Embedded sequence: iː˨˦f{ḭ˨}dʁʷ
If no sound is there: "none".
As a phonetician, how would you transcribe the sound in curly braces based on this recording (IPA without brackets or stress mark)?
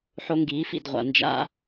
ḭ˨